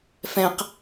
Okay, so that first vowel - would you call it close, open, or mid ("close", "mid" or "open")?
mid